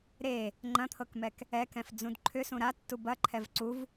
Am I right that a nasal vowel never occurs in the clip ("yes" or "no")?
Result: no